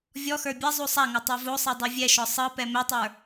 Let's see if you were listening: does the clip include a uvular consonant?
no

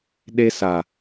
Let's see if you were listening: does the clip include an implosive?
yes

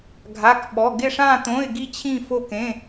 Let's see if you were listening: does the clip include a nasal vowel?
yes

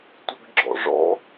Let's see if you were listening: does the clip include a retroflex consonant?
yes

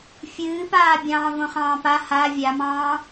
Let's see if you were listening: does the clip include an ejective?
no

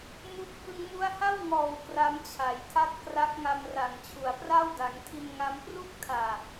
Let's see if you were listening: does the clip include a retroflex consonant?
no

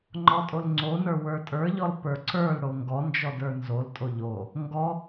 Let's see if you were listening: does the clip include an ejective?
yes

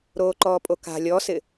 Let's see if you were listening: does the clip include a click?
yes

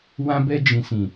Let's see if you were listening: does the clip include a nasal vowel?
yes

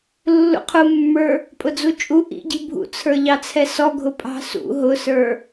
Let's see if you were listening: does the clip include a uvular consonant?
yes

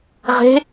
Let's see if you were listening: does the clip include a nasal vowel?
no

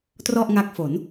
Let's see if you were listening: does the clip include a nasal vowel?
no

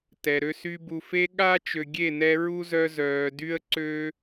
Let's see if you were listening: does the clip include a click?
yes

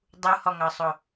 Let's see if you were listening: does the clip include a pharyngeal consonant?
no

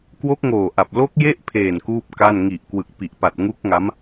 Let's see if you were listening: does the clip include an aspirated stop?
yes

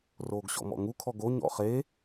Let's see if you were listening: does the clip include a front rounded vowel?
no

